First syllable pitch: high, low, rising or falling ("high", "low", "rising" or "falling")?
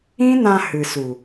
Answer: high